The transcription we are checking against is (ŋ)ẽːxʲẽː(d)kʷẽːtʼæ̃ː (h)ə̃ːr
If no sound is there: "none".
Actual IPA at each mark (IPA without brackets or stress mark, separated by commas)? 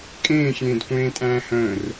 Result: kʼ, d, h